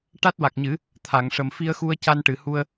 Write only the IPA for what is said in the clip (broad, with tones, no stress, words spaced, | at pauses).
ʈa˦˥t̚wa˨˩k̚ɲɨ˨˩˦ | t̪ʰa˨˩˨ŋʂə˨˩m fi˧ə̯xu˧ə̯ ca˧nʈɨ˨˩˨hu˧ə̯